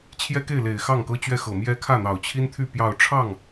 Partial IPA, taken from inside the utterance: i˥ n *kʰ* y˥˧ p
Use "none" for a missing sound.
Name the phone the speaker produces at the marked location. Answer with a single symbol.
t̪ʰ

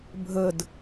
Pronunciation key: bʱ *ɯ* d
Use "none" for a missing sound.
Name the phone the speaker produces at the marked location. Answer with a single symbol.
ə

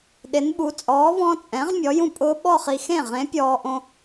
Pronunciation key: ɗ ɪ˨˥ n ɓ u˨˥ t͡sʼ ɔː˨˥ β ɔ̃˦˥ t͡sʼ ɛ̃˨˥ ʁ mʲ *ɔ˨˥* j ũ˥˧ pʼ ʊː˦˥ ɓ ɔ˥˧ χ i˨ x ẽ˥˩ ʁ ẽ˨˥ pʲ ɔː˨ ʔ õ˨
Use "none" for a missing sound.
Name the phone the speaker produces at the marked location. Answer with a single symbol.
ɔ˨˥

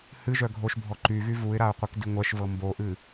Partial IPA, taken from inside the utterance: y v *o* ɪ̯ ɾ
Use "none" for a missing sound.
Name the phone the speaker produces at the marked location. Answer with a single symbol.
u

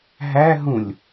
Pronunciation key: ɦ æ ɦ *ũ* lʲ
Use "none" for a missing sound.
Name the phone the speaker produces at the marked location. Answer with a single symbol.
ũ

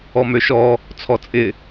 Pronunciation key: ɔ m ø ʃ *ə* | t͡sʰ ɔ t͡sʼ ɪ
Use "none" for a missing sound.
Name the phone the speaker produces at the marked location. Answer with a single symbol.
ɔ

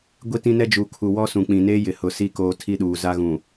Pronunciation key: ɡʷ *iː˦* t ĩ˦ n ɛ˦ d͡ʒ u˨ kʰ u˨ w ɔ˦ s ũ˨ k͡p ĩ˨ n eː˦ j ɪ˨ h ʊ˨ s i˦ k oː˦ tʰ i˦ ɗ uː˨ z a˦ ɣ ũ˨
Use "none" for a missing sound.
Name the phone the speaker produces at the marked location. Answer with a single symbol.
i˦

